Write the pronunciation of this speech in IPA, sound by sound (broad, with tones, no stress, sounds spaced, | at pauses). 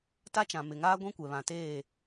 t a˦ t͡ʃ ã˨ m ɪ˨ ŋ aː˦ ɡʷ ĩ˦ kʷ ɛ˨ β ã˨ t eː˦˨